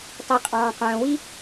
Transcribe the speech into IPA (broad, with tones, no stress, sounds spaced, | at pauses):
tˤ i˩ qʼ ɑ̃ː˩ q œ̃ː˩ w i˥